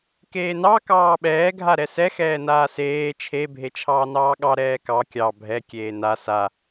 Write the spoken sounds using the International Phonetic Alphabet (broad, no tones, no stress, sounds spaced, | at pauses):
k eː n ɑ k ɑː ɓ ɛː ɡʱ a ɾ ɛ s ɛ x ɛː n aː s eː t͡ʃʰ e bʱ e t͡ʃʰ ɑː n ɑː ɠ ɑ ɾ ɛː k ɑ kʲ ɑ bʱ ɛ kʲ eː n a s a